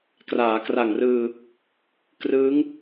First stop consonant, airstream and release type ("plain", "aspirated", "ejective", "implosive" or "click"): plain